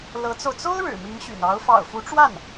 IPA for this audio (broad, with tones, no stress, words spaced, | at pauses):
lɤ˧˥t͡so˧ʊ̯ t͡so˥ʊ̯ ɻɻ̩˨˩mi˧˥ŋɕy̰˨˩n ɑ˧˥ʊ̯ fɑ̰˨˩ʊ̯fu˧˥ʈ͡ʂwa˥˩n